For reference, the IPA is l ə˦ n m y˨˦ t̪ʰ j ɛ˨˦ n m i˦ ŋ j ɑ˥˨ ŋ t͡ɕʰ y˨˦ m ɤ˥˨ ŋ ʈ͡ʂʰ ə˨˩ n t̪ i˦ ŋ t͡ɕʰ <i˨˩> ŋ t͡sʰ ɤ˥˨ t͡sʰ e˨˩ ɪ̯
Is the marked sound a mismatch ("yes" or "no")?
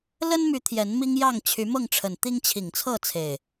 no